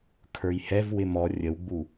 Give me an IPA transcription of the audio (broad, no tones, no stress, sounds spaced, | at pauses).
kʰ ə˞ j h ɛ v w ɪ m ɔ rʲ ə w ɡ͡b u